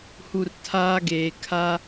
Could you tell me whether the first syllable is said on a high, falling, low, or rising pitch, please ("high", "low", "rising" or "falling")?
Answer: low